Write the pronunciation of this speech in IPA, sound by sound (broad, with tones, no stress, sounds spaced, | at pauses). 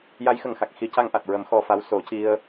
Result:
j a˧˥ j x ə˨˩ ŋ x a˨˩ k̚ x i˨˩˦ c a˧ ŋ ʔ a˨˩ t̚ ɹ ə˨˩˦ m x ɔ˧ f a˧˥ w s o˨˩˦ c i˧ ə̯